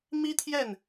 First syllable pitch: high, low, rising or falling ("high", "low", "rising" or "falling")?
high